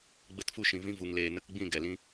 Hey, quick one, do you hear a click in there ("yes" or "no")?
no